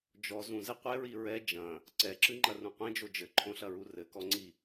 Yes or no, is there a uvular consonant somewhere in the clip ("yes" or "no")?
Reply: yes